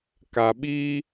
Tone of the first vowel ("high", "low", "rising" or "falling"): low